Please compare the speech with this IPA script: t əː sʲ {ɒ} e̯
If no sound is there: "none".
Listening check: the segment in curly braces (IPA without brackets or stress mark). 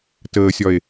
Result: ɒ